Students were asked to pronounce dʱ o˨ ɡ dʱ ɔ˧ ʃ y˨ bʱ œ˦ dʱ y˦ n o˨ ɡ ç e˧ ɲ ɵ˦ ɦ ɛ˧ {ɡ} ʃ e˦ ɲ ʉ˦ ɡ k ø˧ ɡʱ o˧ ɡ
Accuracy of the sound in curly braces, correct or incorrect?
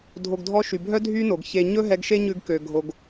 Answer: correct